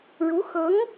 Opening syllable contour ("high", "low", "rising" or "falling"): rising